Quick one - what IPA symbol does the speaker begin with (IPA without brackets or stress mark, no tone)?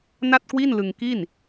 n